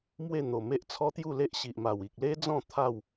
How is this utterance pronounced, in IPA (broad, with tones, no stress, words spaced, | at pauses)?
mwe˥˧ n̪o˨˩me˦ʔ t͡sʰɔ˦t̪ju˥˧le˦ʔ ɕi˨ʔ ma˨˩wi˨k̚le˦d͡zɔ̃˥˧ t̪ʰa˥˧w